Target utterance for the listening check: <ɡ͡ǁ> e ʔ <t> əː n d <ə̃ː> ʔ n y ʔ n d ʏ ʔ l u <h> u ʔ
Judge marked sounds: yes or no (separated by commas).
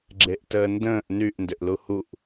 yes, yes, yes, yes